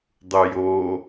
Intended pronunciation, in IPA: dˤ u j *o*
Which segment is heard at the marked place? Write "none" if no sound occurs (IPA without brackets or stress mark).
o